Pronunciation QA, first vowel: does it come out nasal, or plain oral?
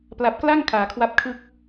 oral